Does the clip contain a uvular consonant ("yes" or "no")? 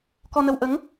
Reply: no